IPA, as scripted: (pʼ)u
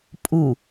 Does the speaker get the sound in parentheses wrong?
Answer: no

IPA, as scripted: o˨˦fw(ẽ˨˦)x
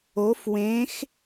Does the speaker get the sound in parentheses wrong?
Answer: no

